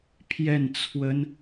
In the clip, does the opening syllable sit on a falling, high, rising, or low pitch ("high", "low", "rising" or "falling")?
falling